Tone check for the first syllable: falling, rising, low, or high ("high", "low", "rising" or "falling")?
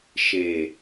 low